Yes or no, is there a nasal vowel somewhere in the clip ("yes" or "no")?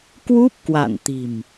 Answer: no